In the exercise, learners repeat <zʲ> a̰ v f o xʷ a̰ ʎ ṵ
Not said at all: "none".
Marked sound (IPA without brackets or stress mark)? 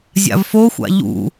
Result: zʲ